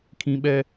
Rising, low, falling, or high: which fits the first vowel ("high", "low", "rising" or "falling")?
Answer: high